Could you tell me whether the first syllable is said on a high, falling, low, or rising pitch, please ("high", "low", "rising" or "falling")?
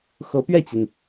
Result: rising